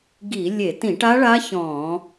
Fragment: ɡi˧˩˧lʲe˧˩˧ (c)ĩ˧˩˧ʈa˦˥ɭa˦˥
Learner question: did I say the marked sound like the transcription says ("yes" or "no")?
no